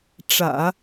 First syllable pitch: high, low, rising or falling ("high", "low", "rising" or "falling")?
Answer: low